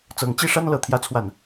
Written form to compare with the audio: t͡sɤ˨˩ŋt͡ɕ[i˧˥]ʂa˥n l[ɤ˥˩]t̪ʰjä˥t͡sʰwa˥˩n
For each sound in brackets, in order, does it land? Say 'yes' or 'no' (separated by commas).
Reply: no, yes